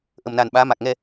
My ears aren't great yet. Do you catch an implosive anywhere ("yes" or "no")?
yes